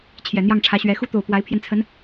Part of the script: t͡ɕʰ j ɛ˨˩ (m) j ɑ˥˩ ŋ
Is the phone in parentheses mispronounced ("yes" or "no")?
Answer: yes